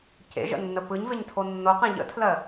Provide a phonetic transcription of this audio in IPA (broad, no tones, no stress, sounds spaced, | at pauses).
c ḛ ʒ ə̰ nː ə p ɯ ɲ v e ɲ tʰ o nː o q ẽ ʎ ə̰ tʰ l ɜ